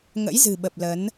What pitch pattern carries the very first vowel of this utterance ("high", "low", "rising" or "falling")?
rising